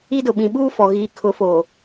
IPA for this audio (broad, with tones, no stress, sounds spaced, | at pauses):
i˦ d ʊ˨ ɓ ĩ˨ ɓ uː˦ f ɔ˨ ɣ iː˨ kʰ ʊ˨˦ f o˨